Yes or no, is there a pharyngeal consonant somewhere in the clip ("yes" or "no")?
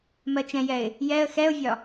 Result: no